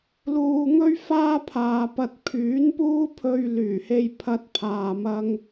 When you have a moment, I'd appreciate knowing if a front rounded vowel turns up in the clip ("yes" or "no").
yes